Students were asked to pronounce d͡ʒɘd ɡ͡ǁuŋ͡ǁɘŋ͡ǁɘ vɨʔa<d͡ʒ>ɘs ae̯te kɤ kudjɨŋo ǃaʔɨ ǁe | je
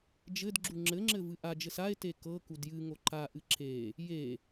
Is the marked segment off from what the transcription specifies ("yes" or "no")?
no